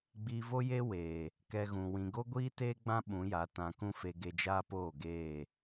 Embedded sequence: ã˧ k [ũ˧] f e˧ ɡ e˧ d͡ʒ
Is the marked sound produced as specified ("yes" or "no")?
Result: no